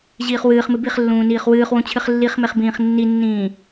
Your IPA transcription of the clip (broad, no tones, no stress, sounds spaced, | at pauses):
ʑ iː χ w ɨː χ m ɨ b i χ lː ũː n iː χ w ɨː χ w ũ t͡ɕʰ ɨ χ lː i χ m e χ b ĩː χ nː i nː ĩː